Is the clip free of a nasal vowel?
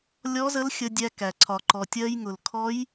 yes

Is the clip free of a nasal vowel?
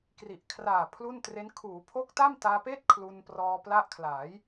yes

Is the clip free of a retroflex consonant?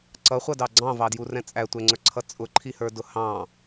yes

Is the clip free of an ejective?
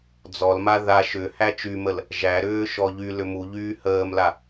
yes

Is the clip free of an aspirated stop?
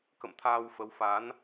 no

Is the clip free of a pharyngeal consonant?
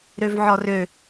no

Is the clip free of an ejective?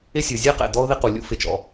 yes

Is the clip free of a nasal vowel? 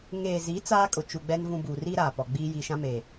no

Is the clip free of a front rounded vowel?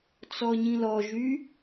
no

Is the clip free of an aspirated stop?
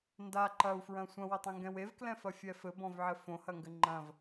yes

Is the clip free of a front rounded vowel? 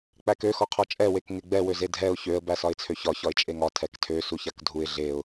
no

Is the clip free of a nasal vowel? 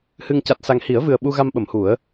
yes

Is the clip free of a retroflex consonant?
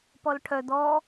no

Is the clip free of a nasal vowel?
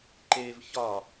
yes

